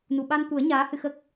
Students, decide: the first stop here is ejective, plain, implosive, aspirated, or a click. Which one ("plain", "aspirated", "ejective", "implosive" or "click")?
implosive